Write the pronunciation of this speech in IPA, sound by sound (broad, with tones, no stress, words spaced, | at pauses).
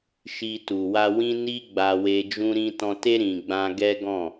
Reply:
ʃi˧ tu˨wa˧wĩ˦ ni˦ɡ͡ba˧we˧ d͡ʒũ˦ɾĩ˦ tɔ̃˧te˦ ɾĩ˧ɡ͡bã˦ ɡɛ˦ɡɔ̃˦˨